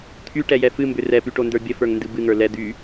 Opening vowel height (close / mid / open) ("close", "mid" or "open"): close